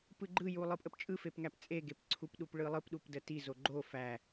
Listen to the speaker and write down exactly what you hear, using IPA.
p ɯ ɡ͡ǃ ɯ j u lˠ ɯ pʼ ə p t͡ʃʼ ɯ f e p ŋ æ p t͡sʼ e ɡ e p ǀʰ u p ɗ u p ɭ ɯ lˠ ɯ p ɗ u p d ə t i z o ɡ͡ǃ o f æ

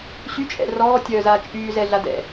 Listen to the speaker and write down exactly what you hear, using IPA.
ɕ y t͡ʃʼ ɛ̰ r ɔː tʲ œː z aː t͡ʃʼ yː z ɛ ɮ a d ɛ̰

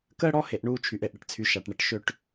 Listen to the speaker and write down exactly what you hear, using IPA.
k əː˦ ɽ ɔ˦ h e˨ ʔ ɳ uː˦ t͡ʃʰ y˨ ʔ e˨ ʔ ɽ ə˨ ʈ t͡sʰ y˨ ʃ a˨ ʈ ɳ ə˨ ʈ ʃ ø˦ ʈ

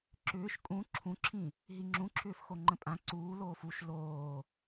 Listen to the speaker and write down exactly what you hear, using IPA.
ǁ ʏː ʃ kʼ ũ ǁʰ ũ ǁʰ ĩ | ɦ i ŋ͡ǁ ũ ǁʰ ʏː f x o ŋ͡ǃ ə̃ pʼ ã ǀ uː l oː f u ʃ l oː

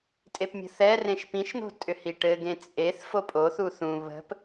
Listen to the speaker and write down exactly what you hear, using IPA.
tʼ e p mʲ ə̤ θ ɛ r ẽ ʃ p ĩ ʃ n̪ o̤ tʼ ʏ h i ʈ ɘ ɡ ẽ t͡sʼ e θ f o pʼ o θ u θ ũ β ə̤ p

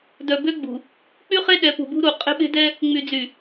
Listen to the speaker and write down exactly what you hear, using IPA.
d œ˨ b ø˦ ɡ͡b ṳ˨ | k͡p y˦ χ e˦ ɗ ɛ˨˦ p ṳ˨ b ṳ˦ ɾ u˨ qʼ e̤˦ ɓ e̤˦ d ɛ˦ | ŋ͡m y˨ d͡z y˨

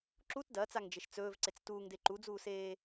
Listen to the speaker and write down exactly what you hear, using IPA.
ǁ u t d ɐː t͡s a ŋ d͡ʒ e ʃ t͡s ɵː v ǀ e t͡s t uː ŋ d e ǃ u d͡z uː s eː

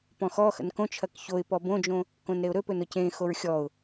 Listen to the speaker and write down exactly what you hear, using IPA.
p ɔ̃ x ɔ x ə̰ n k õ t͡ʃʰ ɐ k ç o ɪ̯ p ɔ b õ d͡ʒ õ | k õ n ɾ e ʊ̯ ɾ ɵ p ɵ n ʊ c ẽ x o ɹ xʲ ɔ ʊ̯

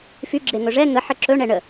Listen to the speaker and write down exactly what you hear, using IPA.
f y ɡ͡ǁ e ŋ ɵ ʐ ɛ ŋ ə ħ ə ǁ ɵ ɳ ɛ ɳ ə

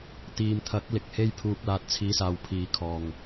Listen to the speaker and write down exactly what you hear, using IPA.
t̪ iː˨ m t̪ʰ ɐ˨˥ k̚ l ɪ˨ k̚ h e˥ j pʰ uː˧ k̚ l aː˧ t̚ t͡sʰ iː˨˧ s aː˨ w pʰ iː˨ kʰ ɔː˨˩ ŋ

